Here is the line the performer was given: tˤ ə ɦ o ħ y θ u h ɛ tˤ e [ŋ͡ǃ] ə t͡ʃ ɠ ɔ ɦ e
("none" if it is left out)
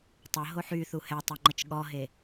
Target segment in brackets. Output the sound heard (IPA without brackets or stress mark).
ŋ͡ǃ